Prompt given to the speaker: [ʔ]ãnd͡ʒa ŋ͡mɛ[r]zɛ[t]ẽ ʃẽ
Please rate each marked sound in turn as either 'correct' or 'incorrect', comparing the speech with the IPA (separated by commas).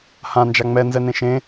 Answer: incorrect, incorrect, incorrect